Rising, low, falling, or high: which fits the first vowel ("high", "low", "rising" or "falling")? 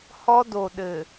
high